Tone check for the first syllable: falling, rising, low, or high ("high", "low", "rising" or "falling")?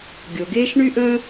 low